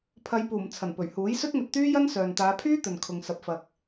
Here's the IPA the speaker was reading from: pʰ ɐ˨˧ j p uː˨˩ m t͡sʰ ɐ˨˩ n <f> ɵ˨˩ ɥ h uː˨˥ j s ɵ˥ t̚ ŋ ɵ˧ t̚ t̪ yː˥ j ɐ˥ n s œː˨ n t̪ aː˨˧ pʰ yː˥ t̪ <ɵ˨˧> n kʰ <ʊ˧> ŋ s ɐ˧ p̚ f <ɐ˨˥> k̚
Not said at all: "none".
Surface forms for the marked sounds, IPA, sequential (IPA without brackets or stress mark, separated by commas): p, ɵ˨, ʊ˧, ɐ˧